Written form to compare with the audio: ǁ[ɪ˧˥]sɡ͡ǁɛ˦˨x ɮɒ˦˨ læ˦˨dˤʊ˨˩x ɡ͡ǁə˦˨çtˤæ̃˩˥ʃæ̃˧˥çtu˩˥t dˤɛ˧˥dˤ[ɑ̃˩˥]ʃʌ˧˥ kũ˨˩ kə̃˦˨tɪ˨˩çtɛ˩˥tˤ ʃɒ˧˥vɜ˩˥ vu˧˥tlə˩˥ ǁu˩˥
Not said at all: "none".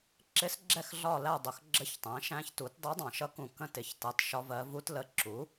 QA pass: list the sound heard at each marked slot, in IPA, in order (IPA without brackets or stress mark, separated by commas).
ɪ˧˥, ɑ̃˨˩